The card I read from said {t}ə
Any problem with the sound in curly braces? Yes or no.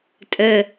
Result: yes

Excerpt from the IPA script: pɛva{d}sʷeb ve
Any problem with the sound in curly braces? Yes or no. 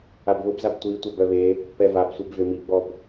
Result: yes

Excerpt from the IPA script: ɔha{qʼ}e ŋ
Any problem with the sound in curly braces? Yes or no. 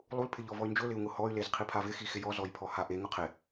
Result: yes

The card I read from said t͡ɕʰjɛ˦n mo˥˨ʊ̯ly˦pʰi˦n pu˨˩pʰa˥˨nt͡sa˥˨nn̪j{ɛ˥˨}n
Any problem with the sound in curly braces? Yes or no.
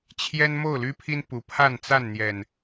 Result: yes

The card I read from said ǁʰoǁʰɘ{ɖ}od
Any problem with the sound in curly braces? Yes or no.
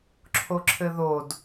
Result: yes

